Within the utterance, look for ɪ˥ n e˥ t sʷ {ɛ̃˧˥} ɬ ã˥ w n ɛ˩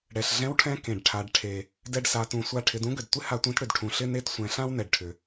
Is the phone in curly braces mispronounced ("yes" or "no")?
yes